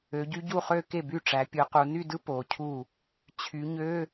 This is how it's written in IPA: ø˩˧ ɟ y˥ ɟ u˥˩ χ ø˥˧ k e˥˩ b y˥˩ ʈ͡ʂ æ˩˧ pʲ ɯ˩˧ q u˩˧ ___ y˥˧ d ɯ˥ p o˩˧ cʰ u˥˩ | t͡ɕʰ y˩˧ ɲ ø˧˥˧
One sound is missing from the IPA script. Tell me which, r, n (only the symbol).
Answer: n